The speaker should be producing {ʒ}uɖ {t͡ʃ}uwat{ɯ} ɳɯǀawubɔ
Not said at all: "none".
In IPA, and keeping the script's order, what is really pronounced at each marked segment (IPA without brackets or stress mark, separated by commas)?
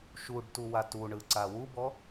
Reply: ʃ, t, u